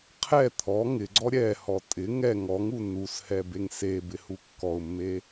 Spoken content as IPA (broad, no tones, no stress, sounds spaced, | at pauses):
qʰ ɛ t̪ʰ ɔ ŋ ɪ ɡ͡ǀ ɔ ɾʲ ɛ h ɔ tʼ ɪ ŋ ɛ ŋ ɔ ŋ u n u s h ɛ b e ŋ s e b ɪ h u kː ɔ ʊ̯ mː e